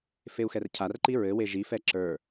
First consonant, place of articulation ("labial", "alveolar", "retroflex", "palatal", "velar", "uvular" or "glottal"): labial